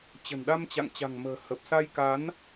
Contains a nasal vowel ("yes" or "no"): no